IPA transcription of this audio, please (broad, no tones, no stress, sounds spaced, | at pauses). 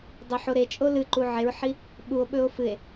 dˤ ɵ ħ o ɾ e t͡ʃʼ o l ɨ ǃ u ʕ e ɹ ħ i | ɓ u o̯ ɓ ɵ o̯ f ɨ e̯